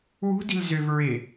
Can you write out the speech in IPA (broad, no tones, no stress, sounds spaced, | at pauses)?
w ṳ d i̤ l z ʏ v ɹ ɪ